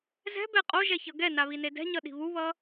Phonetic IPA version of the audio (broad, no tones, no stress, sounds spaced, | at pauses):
z ɛ̤ b ɛ qʼ o ʒ ɛ ç ʌ ɡ ɛ n a β i n e d ɛ̤ ɲ ʌ ɗ i̤ β u β ʌ